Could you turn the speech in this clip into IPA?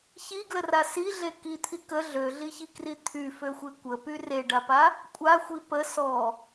ç i ɡ l ə r a s i ɮ e k i t̪ʰ i k ə ɮ ø ɮ i ç i k r i t̪ʰ y f ø xʷ e kʷ ə p y r e ɖ a p a | kʷʼ a xʷ i p ə s ɔ

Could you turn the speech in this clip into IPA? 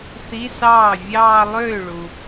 θ i˧˥˧ s ɑː˥˩ vʲ ɑː˥˧ lˠ øː˥˩ ɭ u˨

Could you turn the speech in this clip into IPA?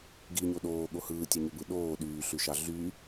ɡ i ɲ o ɗ oː ɠ o h ɯː tʲ ɑ ɲ ø b ɯ ɗ oː ɗ yː ɬ y ʃ ɑ ɮ y

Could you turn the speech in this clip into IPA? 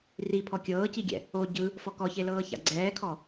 r i pʰ ɔ kʲ ɤː c i ɡʲ ɛ̰ | o ɟ ɯ | f ɔ k ɔ ç e l ɤː ç a̰ ɡ͡ǀ ɛː kʰ ɔ

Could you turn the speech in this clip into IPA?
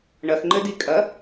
ɳ ɐ x ŋ͡ǃ ɘ d i kʼ ɐ

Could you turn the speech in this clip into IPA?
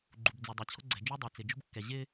ɡ͡ǃ u˨ b d͡z u˨ dˤ a˨ t͡ɕʰ ʊ˦ ɡ͡ǀ ɛ̤˨ d͡ʒ u˦ dˤ a˨ t͡s ɪ˨ d͡ʒ o̤˦ b kː ɛ˨ ʑ ɪ˦

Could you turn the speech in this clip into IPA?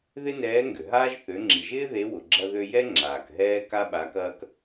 ð ɪ˥ n ɛː˧˥ ŋ ɡ ʏ˩ ɦ aː˥ ʒ θ ø˩˧ ŋ͡ǁ i˩ ʒ ɪː˥ ð e˧˥ w ʊ˩ ɡ͡ǁ ɐ˧ ð ø˧ j ɛ˥ ŋ͡ǁ aː˩ k ɦ ɛː˥ k a˥ ɓ a˧˥ k ɐː˥ k

